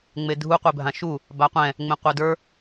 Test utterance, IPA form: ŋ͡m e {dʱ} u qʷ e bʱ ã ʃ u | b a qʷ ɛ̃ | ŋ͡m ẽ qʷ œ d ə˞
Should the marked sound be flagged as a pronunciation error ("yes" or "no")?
no